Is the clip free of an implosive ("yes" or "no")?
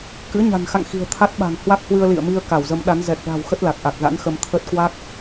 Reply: no